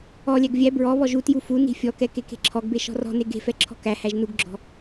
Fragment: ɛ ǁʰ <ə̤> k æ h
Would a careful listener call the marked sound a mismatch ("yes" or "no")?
yes